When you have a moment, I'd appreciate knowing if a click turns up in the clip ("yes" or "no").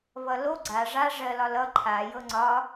yes